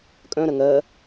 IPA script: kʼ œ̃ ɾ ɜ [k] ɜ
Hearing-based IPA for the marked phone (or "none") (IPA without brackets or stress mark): ŋ